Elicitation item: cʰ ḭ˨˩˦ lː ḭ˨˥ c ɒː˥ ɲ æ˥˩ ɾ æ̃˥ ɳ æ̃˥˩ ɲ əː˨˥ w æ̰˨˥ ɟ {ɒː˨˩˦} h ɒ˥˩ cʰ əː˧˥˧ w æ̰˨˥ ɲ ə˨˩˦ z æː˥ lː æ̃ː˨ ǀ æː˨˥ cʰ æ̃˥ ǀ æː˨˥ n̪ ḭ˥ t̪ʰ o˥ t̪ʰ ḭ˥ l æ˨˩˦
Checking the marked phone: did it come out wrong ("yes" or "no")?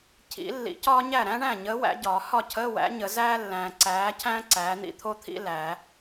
no